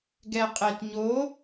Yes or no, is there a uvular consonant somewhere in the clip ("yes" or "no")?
yes